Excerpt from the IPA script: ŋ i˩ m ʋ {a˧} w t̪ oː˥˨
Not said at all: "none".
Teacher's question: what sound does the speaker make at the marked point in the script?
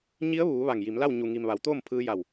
a˩˧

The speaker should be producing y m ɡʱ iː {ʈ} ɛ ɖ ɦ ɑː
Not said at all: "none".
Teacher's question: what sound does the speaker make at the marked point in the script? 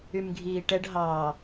ʈ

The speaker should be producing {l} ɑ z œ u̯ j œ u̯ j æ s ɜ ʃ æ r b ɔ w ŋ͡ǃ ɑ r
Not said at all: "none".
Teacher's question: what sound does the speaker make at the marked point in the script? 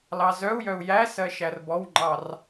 l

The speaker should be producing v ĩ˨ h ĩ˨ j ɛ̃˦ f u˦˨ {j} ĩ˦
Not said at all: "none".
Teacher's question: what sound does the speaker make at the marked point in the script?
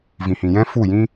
j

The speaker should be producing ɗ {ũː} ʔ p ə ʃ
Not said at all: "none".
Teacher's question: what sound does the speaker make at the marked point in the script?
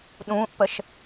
ũː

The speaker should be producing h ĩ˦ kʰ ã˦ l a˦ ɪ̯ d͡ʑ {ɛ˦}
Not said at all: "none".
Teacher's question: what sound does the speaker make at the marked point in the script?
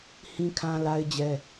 ɛ˦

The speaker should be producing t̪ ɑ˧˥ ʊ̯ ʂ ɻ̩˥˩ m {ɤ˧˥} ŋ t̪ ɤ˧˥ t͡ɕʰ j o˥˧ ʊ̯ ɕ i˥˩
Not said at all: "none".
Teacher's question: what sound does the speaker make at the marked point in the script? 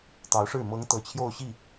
ɤ˧˥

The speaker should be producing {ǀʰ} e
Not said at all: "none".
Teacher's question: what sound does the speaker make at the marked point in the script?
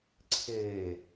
ǀʰ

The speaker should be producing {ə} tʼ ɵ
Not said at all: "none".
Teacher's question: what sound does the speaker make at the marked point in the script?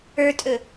ə˞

